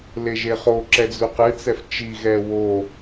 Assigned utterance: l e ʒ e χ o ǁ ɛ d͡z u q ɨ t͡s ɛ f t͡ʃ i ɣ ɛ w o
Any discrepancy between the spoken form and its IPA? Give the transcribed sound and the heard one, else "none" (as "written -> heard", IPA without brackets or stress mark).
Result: none